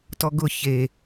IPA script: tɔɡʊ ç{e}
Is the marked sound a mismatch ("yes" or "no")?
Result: no